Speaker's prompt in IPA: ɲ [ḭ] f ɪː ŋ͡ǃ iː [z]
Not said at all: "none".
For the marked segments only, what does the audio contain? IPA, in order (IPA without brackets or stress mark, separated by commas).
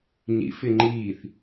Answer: ḭ, θ